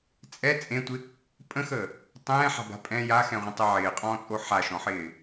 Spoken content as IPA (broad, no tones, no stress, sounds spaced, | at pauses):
t͡sʼ ɛ t͡sʼ ẽ tʷ ɪ | pʼ ə̃ x əː | tˤ ɛ̃ː ħ a̤ b a̤ pʼ ɛ̃ j a x ɛ̃ ʁʷ ə̃ tˤ ɛ ʕ ɪː qʼ ɔ̃ː t͡sʼ o ħ a ʃ ɔ̃ ħ ɪː